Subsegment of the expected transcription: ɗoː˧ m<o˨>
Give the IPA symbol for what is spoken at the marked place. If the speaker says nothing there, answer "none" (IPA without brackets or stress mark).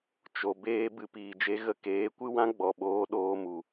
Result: u˨